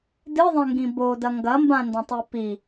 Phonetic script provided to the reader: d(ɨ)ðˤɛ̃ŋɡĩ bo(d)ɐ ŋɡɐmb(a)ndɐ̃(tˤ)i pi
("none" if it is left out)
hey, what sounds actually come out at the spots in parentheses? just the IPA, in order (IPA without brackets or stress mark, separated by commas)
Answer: ɨ, d, ã, tˤ